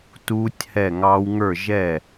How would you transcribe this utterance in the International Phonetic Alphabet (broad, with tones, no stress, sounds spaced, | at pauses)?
t uː˦˥ tʲ h ɛ˥˨ ŋ ɑː˦˥ w ŋ ə˞˥˨ ʒ ɛ˥˨